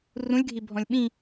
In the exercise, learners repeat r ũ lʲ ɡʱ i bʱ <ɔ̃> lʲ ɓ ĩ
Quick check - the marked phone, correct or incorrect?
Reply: correct